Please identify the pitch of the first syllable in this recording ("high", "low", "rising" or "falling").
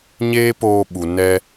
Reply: high